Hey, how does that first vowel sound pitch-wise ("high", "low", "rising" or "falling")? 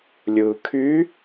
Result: low